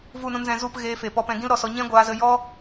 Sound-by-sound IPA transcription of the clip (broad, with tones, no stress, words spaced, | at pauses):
vu˦˨nũ˧nzɛ̃˧ zu˦˨p ɣeː˧fe˨pɔ˧pɛ̃˧ ɡĩ˦lɾɔ˨sɔ˧ ɲɛ̃˦ɡʷaː˧zə˧jɔ˦